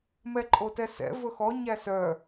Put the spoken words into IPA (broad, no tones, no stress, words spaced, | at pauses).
mɛǃʼotɛsɛ̰ vɵxɔ ɲæsœ